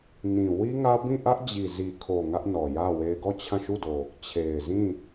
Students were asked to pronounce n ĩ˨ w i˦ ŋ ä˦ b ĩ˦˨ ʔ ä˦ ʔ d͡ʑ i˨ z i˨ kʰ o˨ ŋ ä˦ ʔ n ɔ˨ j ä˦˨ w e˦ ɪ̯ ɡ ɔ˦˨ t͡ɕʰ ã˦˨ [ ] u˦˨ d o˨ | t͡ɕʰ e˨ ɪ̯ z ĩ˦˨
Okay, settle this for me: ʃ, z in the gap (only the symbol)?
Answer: ʃ